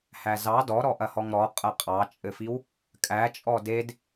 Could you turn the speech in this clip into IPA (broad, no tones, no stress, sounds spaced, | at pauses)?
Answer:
h æ z ɑ d ɔ ɾ ɔ ʔ ɐ h ɔ ŋ ɾ ɔ qʼ ɐ qʼ ɑ t͡ʃʼ ɘ f i w | kʼ æ t͡ʃʼ ɔ d e d